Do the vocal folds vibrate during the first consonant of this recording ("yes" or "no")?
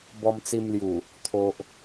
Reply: yes